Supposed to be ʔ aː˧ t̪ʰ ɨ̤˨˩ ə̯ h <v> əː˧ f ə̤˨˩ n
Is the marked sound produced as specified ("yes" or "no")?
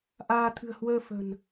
no